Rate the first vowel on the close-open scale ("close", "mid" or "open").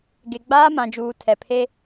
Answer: mid